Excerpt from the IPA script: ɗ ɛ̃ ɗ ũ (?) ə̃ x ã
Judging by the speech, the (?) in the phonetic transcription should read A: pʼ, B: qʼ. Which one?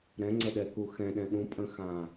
A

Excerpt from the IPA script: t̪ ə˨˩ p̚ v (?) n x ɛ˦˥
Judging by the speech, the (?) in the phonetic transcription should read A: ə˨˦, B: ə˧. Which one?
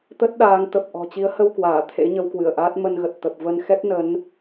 B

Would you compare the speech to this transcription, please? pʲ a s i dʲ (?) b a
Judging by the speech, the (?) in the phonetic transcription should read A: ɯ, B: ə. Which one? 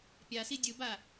A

